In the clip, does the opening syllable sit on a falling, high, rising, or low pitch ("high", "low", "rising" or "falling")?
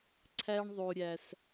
high